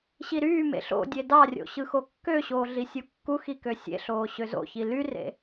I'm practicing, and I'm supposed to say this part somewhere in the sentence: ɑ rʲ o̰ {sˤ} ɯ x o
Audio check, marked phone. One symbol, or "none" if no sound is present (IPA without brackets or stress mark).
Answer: ɕ